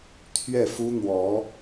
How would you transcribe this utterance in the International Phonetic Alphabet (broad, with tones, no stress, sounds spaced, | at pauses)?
t̪ʰ ɥ ɛ˥˩ f u˥ n̪ w ɔ˧˥